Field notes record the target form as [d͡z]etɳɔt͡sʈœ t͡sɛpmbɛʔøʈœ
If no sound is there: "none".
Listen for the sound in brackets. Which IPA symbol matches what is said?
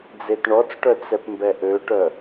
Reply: d͡z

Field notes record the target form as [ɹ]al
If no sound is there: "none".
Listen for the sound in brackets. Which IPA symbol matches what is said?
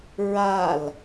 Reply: ɹ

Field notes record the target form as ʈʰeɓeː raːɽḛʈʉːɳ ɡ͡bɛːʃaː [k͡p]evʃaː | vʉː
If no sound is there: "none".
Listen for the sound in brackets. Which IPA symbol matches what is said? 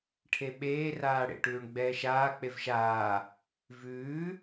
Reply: k͡p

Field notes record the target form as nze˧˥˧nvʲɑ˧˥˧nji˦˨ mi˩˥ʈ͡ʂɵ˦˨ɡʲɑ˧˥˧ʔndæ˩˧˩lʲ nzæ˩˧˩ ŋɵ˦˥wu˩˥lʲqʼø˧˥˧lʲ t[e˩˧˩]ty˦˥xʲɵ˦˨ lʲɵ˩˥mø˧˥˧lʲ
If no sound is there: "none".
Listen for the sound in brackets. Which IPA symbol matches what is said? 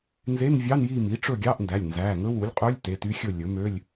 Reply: e˩˧˩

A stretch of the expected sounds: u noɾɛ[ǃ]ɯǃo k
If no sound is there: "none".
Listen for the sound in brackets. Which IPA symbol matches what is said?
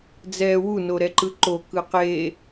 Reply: ǃ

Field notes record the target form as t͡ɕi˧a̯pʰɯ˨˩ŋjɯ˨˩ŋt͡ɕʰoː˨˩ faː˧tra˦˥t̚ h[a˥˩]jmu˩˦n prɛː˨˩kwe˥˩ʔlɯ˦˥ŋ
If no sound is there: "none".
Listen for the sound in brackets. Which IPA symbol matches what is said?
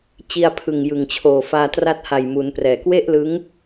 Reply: a˨˩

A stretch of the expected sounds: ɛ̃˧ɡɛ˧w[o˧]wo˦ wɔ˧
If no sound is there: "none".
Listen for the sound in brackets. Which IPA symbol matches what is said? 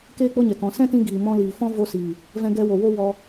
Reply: o˨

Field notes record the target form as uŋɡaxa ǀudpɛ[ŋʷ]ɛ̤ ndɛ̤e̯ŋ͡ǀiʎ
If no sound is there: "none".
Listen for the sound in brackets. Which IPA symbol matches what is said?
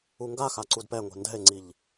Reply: ŋʷ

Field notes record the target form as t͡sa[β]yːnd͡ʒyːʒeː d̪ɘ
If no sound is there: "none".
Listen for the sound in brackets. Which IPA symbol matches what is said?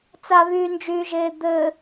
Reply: β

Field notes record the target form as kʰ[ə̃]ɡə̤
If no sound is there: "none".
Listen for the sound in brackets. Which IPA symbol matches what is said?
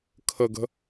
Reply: ə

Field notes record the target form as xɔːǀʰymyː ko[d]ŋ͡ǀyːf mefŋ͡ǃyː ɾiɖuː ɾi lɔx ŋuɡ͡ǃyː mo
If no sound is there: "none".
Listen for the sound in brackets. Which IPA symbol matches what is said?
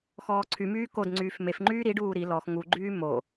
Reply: d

